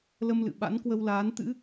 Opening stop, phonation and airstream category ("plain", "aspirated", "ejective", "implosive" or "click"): implosive